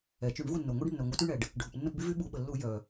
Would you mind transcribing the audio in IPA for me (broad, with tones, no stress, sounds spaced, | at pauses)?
ɛ˩ t͡ʃ y˧˩˧ ɳ v u˦˨ nː o˩ ŋʷ ɛ˦ ɖ nː œ˩ ŋʷ œ˧˩˧ t y˦ ɳ ɛ˩ ɖ | ɖʱ u˩ p nː ə˦˨ p b y˦ v y˦ ɓ u˧˩˧ ɓ ə˩ lː u˧˩˧ j œ˩